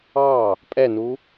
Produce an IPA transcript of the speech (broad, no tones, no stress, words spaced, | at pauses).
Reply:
ɑ | pʼɛnu